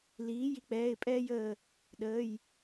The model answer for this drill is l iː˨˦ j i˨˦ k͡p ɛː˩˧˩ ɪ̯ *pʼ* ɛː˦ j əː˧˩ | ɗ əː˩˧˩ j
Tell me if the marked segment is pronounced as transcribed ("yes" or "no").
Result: yes